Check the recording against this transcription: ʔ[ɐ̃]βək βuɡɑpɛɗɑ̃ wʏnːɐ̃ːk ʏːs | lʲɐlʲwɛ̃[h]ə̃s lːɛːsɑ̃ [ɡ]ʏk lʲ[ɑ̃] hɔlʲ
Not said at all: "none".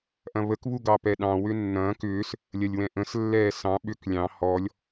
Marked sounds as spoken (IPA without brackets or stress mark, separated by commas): ɐ̃, ʔ, ɓ, ɑ̃